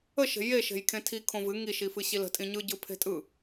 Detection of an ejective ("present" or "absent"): present